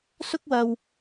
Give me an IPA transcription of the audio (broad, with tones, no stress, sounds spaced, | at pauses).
s ʊ˥ k̚ w ɐ˧ w